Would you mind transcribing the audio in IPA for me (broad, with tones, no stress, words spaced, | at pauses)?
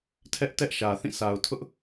tʰɛ˦ʔ tɛ˦ʔʃä˨ θĩ˦˨sʰa˨ʊ̯tʰʊ˦ʔ